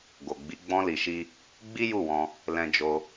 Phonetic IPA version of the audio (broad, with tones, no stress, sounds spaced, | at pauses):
ɡ o˨ ɡ͡b i˨˦ ɡ͡b ɔ̃˧ l i˨ ʃ i˧ | ɡ͡b i˦ j u˦˨ w ɔ̃˧ | l ɛ̃˧ d͡ʒ o˧